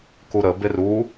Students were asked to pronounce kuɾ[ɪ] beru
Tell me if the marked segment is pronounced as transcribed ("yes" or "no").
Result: no